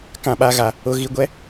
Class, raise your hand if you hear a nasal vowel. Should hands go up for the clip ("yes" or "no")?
yes